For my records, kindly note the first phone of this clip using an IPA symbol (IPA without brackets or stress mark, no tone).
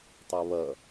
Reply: tˤ